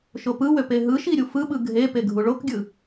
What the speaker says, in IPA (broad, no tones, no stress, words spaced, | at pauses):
ʃopɯwø peɦɯʃi ɾʲufɯɓɯ ɡʱepe ɡʱuɭokɡʲɯ